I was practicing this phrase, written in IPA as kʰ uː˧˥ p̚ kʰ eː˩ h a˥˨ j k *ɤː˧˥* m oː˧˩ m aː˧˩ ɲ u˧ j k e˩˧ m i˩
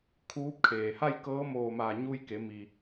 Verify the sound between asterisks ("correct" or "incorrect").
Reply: correct